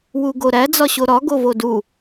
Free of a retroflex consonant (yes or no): yes